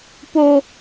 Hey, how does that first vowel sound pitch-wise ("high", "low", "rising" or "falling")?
high